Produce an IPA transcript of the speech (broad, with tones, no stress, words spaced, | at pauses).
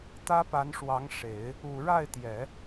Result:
t̪ä˥pa˧˥nʂwɑ˧˥ŋ ʂe˨˩˦ɪ̯ | u˨˩ɻa˥˩ɪ̯t̪jɛ˨˩˦